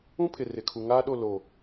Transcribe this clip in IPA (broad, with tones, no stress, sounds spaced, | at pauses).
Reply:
ũ˦ pʰ ɪ˨ r ɪ˨ kʰ u˨ ŋ aː˦ ɗ o˦˨ l o˨